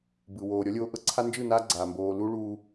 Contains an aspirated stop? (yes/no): yes